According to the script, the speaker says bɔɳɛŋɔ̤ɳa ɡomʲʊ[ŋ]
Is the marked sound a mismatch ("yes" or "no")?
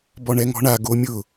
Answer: yes